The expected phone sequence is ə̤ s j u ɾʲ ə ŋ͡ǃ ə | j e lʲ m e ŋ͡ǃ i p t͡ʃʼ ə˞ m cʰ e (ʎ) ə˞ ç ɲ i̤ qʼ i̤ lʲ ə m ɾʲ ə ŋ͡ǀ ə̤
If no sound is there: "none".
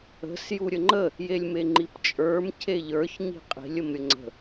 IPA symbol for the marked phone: ʎ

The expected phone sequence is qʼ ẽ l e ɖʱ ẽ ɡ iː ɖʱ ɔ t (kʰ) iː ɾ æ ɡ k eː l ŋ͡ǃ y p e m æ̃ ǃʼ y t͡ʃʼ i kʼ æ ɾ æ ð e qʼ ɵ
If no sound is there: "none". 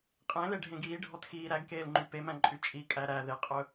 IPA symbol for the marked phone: x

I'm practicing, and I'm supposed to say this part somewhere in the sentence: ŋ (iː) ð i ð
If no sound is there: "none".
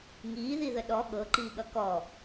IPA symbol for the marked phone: iː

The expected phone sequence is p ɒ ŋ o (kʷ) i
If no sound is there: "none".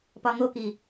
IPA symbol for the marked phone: k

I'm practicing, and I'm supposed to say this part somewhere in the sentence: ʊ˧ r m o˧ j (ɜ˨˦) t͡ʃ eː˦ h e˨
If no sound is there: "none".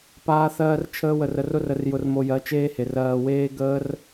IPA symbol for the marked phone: ɜ˨˦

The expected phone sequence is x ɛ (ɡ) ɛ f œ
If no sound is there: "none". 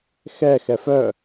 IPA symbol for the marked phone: x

